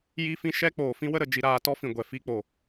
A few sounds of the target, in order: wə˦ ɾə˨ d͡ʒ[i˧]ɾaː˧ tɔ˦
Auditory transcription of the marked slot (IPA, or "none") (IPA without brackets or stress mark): i˧